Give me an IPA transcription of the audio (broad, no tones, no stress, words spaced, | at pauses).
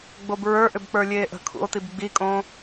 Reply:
ɡ͡bobɹə˞ʔʏbk͡pə˞ lʲeːʔə̤ kʰṵo̯tib ɡ͡bikʼõː